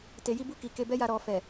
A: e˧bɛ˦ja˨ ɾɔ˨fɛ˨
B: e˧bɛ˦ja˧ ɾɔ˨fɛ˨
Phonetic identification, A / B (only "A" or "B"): B